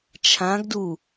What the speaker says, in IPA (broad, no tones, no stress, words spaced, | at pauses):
t͡ʃʰãɡdu